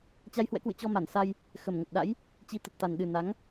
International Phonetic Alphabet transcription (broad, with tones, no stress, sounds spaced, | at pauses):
t͡ɕ a˧ j h w ɛ̰˧˥ k w ɨ̰˧˨ t͡ɕ ɔ˧ m a˧˩ n s a˧ j | x ə˨˩ m ŋ ə˨˩ t̚ ɗ a̰˧˥ j | t͡ɕ i˨˦ t̪ ə˨˩ t̚ t̪ a˨˩ n ɗ ɨ˨˩ n a˨˦ ŋ